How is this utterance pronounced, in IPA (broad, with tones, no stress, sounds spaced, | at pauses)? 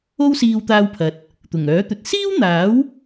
o˥ w s iː˧ w t̪ aː˧ w pʰ ɐ˨ t̚ | t̪ ʊ˨˩ ŋ œː˨˥ t̪ ɵ˨ t̚ s iː˥ w n̪ aː˨˥ w